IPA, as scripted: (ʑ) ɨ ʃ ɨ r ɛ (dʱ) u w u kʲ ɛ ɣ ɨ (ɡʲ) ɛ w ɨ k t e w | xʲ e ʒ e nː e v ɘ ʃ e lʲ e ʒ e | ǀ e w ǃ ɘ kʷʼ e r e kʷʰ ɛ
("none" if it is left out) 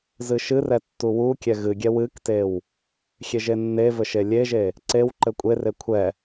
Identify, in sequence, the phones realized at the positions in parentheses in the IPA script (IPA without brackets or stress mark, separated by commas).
z, tː, ɡʲ